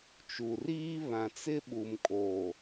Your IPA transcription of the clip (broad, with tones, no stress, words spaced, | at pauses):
t͡ʃu˨riː˦ βã˨t͡sɪ˦ ɓu˨m kʼo˨